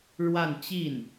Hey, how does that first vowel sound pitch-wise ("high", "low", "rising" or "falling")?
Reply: falling